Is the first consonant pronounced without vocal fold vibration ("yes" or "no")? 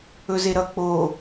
no